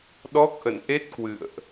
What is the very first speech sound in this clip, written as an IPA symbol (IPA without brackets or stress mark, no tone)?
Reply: ɗ